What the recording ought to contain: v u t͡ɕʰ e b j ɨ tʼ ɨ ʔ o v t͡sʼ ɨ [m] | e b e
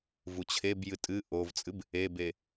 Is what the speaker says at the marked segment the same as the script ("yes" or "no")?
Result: no